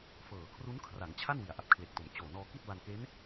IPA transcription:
fɤː˨˩ kʰru˦˥nkʰra˩˦ŋt͡ɕʰa˥˩n wi˩˦a̯ʔa˨˩p̚kʰle˨˩k̚to˨˩m t͡ɕoː˨˩nɔː˧ki˥˩t̚ ba˧nke˦˥n

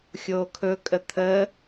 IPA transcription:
xʲoːkʰɵkʼə t̪ʰə

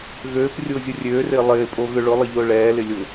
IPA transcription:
ɣøːp rʲʊːzʲʊrʲøːrɪː lˠɪːpʼo ɣʏɭʊlˠə ʎʊːɭɛːlɪ lʲʊ

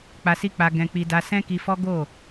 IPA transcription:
k͡pa˧si˦k͡pa˧ ɡɛ̃˧k͡pi˧ da˧sɛ̃˦ki˧fɔ˦ ɡo˦˨

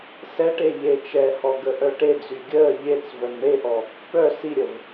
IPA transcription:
sɛʈe ʎe t͡ʃɛhɔ ɡəʔœʈed͡zy ɡʲəː ʎet͡s vœnɳeʔɔ | pœ siɾʲəv

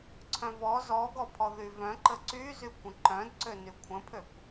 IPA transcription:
ǀʰœ̃vɔ zɔɡɔpʰɔ ðyvœ̃ǃə ǀyzykʷə̃ ǃœ̃d ǀønykʷʰə̃pʰøkʷ

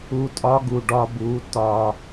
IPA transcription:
u˧tʼɒ˦ɡu˨ ɖɒ˧bu˨˦ tɒ˧

